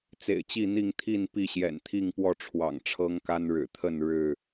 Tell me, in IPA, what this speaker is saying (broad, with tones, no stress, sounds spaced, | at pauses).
t͡s ḛ˨˩ ɪ̯ t͡ɕ i˥˨ n̪ i˥˨ ŋ t̪ʰ i˥˨ n p i˥˨ ɕ j ɛ̰˨˩ n t̪ʰ i˥˨ ŋ p w ɔ˥˨ ʈ͡ʂʰ w ɑ̰˨˩ ŋ ʈ͡ʂʰ ɤ˦ ŋ k a˦ n ɻ ɻ̩˨˩ t̪ʰ ə˥˨ n ɻ ɻ̩˥˨